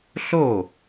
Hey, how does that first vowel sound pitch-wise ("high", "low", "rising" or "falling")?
falling